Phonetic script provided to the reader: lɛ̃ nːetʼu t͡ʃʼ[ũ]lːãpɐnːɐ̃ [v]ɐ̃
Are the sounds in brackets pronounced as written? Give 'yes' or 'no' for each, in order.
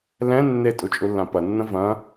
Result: no, yes

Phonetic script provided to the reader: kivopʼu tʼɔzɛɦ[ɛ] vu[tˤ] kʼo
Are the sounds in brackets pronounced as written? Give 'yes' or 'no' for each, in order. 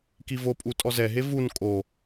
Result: no, no

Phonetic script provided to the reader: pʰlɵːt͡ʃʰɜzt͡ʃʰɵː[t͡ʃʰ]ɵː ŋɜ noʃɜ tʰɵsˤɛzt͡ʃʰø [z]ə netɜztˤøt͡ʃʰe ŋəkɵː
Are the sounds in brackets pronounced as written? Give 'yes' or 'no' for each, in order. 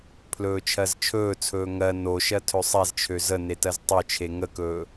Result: no, yes

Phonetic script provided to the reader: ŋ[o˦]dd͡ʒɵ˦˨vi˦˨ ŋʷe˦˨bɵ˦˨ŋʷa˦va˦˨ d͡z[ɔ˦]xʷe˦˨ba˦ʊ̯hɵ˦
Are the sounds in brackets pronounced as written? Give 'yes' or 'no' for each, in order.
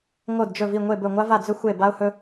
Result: no, no

